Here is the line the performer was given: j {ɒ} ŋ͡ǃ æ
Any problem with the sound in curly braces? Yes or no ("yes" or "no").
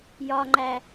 no